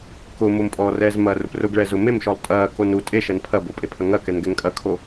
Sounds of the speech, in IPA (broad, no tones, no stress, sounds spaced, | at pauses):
k ʊ m o m pʼ ɔ r ɛː z m ɐː r ʊ p r ʊ ɡ ɭ ɛ z ʊ m e m ʃ ɔ lˠ tʼ ɐː k o n u tʼ e ʃ ɐ n pʰ ɐ b o pʼ e pʰ ɐ ŋ ɐ k ɛ n ɡ ɛ ŋ kʼ ɐ kʰ o